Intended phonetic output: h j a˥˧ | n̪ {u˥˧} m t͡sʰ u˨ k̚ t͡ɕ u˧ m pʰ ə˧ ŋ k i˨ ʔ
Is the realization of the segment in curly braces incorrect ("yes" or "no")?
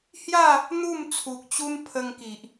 no